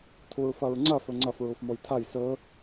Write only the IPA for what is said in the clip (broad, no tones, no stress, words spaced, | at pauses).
tʰuɹfɐɹŋ͡ǀɐ fɵŋ͡ǀɐf ɹufmojtʰaj sɵ